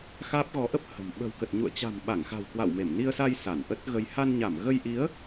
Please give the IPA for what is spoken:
x aː˦˥ p̚ ɣ ɔ˨˦ ʔ ə˦˥ p̚ h ə̤˨˩ m ɓ ə̤˨˩ w k ə˨˩ t̚ ɲ ṵ˧˨ ə̯ t͡ɕ a̤˨˩ m ɓ a˧˩ ŋ x a̤˨˩ w k w a̰˧˨ w m e˧˩ m n i˧ ə̯ s a˧ j s a˧˩ n ʔ ə˦˥ t̚ ɣ ə˧ j h a˧ n ɲ a˧˩ m ɣ ə˧ j ʔ i˨˦ ə̯

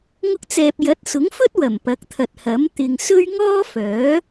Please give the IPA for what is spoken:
ŋ ʊ˧ k̚ t͡s ɛː˨ p̚ j ɐ˨˥ t̚ s ʊ˨˥ ŋ f ɵ˥ t̚ w ɐ˨˩ m p ɐ˨˥ k̚ t̪ʰ ɐ˨ t̚ h ɐ˨˥ m t̪ ɪ˨ ŋ s ɵ˥ ɥ ŋ ɔː˥ f œː˨˥

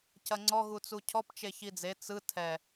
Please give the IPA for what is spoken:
c ɐ ŋ͡ǀ ɔ ɣ u t͡s u cʰ ɔ p t͡ʃ e ç i d͡z e t͡s ɯ tʰ ɛ

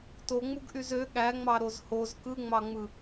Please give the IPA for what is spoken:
t o ŋ͡m u ɡ ʔ y z ø ɠ æ ŋ͡m ɑ ɾ o z h o z k ɯ ŋ͡m ɑ ŋ͡m ɯ

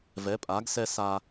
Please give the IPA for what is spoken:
v ɛ˨˦ pʼ a˨˦ ɡ s ɛ˦ s a˦

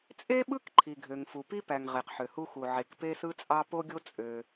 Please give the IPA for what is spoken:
t͡sʼ e˥ ɓ ɯ˥ k ǃʰ i˩ ɡʱ ø˩ ŋ f u˩ p i˥ p æ˩ ŋ ʁ e˩ q ħ ø˩ h u˥ x u˩ ʕ e˩ k p e˥ s ɯ˥ t͡sʼ ɑ˥ p o˥ ɡʲ o˥ t͡sʼ ø˩

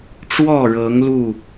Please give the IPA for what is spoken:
ʈ͡ʂ w ɔ˥˨ ɻ ɤ˨˦ ŋ l u˥˨

